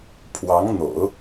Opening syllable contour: rising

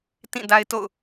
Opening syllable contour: falling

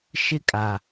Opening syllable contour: high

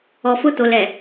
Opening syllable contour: low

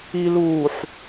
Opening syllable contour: low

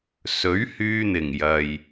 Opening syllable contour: rising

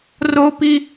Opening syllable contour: high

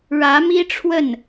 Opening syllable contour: rising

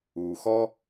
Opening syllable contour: low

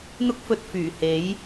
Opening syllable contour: high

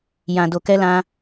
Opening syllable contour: low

